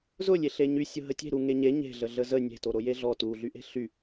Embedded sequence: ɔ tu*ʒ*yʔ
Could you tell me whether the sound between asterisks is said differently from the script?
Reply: yes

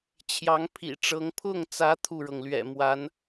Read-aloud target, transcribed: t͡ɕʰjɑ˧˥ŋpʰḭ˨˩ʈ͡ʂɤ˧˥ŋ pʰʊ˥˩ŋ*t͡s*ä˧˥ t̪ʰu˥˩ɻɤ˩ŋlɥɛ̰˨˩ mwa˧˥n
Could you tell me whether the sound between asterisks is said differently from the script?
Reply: no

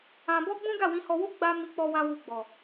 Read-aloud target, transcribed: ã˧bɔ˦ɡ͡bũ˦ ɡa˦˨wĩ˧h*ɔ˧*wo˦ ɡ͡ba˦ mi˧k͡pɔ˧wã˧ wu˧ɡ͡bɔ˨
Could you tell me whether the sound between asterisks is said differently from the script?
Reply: no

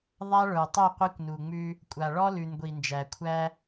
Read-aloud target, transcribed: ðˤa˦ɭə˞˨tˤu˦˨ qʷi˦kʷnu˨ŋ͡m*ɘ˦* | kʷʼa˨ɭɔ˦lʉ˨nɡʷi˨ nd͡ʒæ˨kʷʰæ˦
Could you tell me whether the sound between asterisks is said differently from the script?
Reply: yes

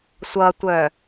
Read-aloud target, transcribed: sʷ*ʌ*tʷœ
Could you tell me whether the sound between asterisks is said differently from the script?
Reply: no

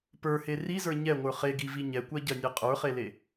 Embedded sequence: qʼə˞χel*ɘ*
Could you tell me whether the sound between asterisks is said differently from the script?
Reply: yes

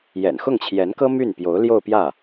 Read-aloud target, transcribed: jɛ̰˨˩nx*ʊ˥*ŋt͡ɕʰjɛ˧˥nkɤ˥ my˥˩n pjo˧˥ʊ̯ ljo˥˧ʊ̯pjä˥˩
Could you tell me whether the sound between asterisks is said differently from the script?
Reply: yes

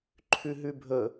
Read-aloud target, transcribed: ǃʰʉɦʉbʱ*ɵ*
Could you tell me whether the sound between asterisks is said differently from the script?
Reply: no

